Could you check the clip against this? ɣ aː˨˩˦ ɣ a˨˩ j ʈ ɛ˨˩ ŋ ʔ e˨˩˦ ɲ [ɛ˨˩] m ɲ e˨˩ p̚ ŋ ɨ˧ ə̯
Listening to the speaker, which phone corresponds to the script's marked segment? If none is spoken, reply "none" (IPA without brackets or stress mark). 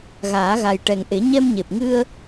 ɛ˧